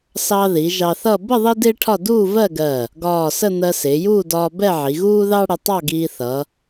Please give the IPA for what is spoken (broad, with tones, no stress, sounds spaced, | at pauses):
s ɑ˧ ð i˩˧ ʒ ɑ˧ θ ʌ˥˧ b ə˥˧ ðˤ i˥ d ɪː˥ ʈʰ ɒ˥˧ d uː˥˧ v ɜ˥˧ ɡ ɜ˧˩ | ɡ ɒː˧˩ s ə˥˧ n̪ ɜ˧ s ɪː˩˧ j uː˥˧ d ɒː˧ b ɛ˥˧ ʕ i˩˧ ɣ uː˥ ð ɑ˥ ɽ ə˧ tˤ ɑ˥˧ ɡ iː˧ θ ʌ˩˧